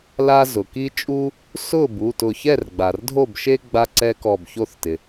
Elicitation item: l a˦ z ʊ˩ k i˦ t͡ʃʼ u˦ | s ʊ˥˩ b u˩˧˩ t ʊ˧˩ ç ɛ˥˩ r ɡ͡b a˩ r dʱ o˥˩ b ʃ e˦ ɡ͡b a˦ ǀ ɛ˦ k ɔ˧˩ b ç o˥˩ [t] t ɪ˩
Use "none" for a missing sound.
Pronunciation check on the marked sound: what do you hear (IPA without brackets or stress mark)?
θ